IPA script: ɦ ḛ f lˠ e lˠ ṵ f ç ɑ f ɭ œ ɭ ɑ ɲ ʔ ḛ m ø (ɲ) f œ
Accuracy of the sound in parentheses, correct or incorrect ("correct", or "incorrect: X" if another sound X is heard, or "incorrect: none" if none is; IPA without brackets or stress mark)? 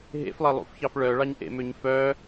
correct